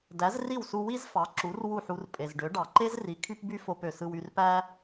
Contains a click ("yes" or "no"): yes